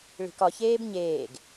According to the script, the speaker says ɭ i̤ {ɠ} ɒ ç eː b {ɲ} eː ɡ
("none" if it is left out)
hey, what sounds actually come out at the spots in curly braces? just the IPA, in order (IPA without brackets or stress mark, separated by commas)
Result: k, ɲ